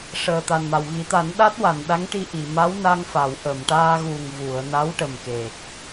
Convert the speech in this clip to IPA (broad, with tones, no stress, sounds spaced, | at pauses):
ʂ əː˨˩ t̪ a˨˩ n m a˨˩ w ɣ i˨˩˦ t̪ a˨˩˦ n ɗ a˦˥ t̚ w a˨˩˨ n ɗ a˧˥ ŋ ʈ i˧ ʔ i˨˩˨ m a˧˥ w n a˧ ŋ f a˨˩˨ w ʔ ə˨˩˨ m ʈ aː˧ ɣ u˨˩ ŋ v u˨˩˨ ə̯ n a˧˥ w ʈ ə˨˩ m k e˨˩ k̚